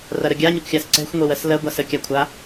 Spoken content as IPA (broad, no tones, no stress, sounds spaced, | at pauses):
r ɐ ɾ ə ɡʲ a ɲ ə kʷ xʲ a s ǀ ɛ̤ xʷ ŋʷ e w ɜ s l ɜ ɡʷ a s ə kʲ a kʷʰ a